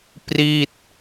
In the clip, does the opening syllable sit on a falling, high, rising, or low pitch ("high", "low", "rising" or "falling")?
falling